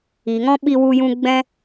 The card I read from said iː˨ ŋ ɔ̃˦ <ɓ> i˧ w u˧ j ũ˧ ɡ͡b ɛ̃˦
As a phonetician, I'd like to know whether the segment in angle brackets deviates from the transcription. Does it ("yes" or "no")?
no